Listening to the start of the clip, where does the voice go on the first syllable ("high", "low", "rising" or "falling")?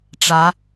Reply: rising